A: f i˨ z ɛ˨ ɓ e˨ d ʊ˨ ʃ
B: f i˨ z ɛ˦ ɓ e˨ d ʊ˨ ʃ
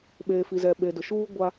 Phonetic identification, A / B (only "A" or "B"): A